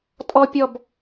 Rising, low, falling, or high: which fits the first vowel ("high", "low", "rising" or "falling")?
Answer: high